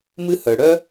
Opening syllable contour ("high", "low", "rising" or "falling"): high